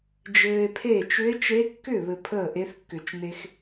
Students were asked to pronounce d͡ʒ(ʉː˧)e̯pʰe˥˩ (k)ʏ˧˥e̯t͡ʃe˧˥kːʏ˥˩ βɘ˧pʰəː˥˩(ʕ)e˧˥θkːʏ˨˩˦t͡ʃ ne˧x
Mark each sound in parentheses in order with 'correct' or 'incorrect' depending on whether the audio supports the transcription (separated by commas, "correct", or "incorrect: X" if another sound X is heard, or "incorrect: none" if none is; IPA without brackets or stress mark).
incorrect: ɘː˧, incorrect: t͡ʃ, incorrect: ʔ